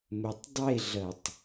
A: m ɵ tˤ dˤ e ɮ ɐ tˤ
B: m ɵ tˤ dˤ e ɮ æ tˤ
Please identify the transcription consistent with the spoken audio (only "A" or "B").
A